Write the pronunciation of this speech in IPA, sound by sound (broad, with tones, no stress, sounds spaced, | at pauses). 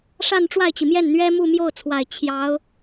ʂ a˥˧ n ʈ͡ʂ w a˥˩ ɪ̯ t͡ɕ i˩ m j ɛ˥˩ n n̪ ɥ ɛ˥ m u˥˧ m j o˥˩ ʊ̯ t͡sʰ w a˨˩ ɪ̯ t͡ɕʰ j ɑ˧˥ ʊ̯